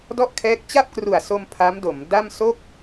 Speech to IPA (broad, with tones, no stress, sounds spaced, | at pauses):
d ɔ˥˩ ʔ kʰ ɛː˦˥ k̚ t͡ɕ a˥˩ p̚ k r u˨˩ a̯ s o˧ m pʰ a˦˥ m d o˩˦ m d a˥˩ m s o˥˩ k̚